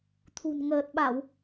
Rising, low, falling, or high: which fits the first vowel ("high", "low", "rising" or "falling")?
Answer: low